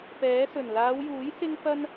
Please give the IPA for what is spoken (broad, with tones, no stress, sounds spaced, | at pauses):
p ɛː˨˥ s ɵ˨˩ n l aː˨˧ w j uː˨˥ j s ɪ˥ ŋ f ɐ˥ n